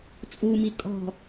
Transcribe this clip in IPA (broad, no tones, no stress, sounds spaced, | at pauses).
t͡sʼ u m i kʼ ɔ̤